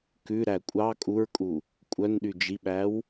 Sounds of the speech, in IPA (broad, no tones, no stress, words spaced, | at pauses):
kʉɾæ kʷʼɑ kʼuɹkʼu | kʷʼœnɗy d͡ʒiɓæw